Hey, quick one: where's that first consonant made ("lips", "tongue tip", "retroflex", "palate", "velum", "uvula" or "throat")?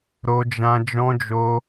tongue tip